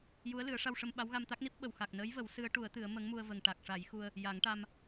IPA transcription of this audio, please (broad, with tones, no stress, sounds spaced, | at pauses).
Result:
j u˧˥ ə̯ l ɨ˨˩˦ ə̯ ʂ a˧ w ʂ ə˧ m ɓ a˧˥ w ɣ a˧ m t̪ a˦˥ k̚ n i˦˥ p̚ ɓ ə˨˩ w x a˨˩ k̚ n əː˧˥ j v ə˨˩˦ w s ɨ˧˥ ə̯ ʈ u˨˩˦ ə̯ t̪ ɨ˨˩˦ ə̯ m ə˧˥ ŋ m u˧ ə̯ v ə˨˩ ŋ ʈ a˨˩ k̚ ʂ a˨˩˦ j x u˧ ə̯ | j a˨˩˦ ŋ ʈ a˧ m